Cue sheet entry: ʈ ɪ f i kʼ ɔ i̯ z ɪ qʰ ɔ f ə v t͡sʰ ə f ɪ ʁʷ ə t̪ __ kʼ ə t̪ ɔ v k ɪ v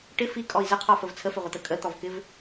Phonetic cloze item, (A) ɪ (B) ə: B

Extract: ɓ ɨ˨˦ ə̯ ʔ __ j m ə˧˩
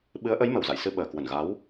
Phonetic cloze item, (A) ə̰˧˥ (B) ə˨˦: B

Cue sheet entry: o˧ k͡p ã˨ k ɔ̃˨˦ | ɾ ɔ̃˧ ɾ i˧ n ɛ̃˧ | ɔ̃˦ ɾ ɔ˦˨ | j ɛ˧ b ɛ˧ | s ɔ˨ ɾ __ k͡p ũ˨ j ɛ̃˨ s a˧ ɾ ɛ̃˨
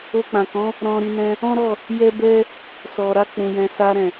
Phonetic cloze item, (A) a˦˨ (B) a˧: B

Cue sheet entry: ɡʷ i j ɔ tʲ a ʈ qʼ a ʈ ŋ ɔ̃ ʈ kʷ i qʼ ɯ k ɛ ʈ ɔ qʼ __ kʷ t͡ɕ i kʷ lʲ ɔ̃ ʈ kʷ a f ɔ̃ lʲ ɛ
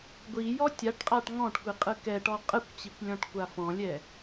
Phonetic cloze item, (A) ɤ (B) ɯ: B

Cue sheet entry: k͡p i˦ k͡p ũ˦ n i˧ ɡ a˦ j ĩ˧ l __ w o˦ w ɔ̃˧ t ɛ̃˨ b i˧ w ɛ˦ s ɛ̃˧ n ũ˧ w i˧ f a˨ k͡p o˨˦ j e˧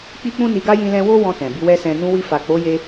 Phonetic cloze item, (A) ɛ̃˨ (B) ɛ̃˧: B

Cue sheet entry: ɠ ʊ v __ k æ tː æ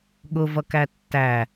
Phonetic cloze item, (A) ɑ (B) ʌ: B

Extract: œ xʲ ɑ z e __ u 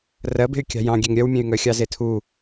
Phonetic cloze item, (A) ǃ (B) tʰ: B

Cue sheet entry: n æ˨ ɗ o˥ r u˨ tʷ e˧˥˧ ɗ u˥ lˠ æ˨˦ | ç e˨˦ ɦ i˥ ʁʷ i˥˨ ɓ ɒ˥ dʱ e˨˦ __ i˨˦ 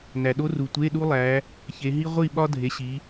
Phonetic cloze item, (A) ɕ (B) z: A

